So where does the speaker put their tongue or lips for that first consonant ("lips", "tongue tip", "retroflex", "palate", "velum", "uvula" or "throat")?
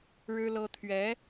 retroflex